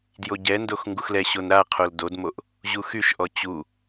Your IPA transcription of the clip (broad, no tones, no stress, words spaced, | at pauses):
djoɟɛndox ŋɡuxlɛɕon ɾaqʰol dodmoʔ | ʑuxyʃʔɔ t͡ɕu